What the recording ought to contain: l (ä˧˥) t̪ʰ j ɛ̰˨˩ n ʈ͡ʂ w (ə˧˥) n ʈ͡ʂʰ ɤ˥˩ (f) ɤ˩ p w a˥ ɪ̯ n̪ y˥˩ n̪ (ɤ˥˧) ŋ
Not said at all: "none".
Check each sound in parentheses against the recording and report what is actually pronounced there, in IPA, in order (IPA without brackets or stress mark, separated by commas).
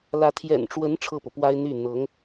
ä˧˥, ə˧˥, p, ɤ˧˥